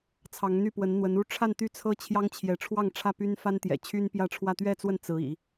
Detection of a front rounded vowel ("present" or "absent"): present